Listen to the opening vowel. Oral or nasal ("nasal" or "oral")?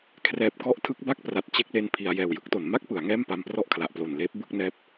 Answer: oral